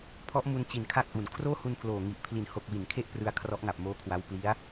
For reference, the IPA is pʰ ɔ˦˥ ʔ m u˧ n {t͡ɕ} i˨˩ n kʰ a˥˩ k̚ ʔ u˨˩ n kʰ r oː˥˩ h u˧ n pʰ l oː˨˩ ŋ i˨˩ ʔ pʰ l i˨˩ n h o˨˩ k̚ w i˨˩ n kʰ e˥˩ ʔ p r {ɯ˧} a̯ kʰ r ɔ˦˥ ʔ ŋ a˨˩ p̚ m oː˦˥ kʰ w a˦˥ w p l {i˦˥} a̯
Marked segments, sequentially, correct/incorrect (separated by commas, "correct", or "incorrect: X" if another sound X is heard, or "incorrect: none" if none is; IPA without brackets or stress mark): correct, correct, correct